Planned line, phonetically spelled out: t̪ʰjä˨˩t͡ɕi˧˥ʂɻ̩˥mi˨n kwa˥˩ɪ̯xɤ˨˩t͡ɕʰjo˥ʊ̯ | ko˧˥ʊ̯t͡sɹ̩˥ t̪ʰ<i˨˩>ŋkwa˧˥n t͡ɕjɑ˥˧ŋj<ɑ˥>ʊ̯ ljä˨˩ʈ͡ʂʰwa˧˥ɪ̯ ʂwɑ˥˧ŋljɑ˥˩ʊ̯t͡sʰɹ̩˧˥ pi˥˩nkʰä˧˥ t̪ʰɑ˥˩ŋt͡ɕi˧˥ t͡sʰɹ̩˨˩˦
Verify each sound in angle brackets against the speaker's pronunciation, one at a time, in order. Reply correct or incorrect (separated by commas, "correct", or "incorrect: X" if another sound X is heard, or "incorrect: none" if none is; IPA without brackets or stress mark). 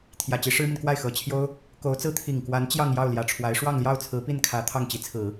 correct, incorrect: ɑ˥˩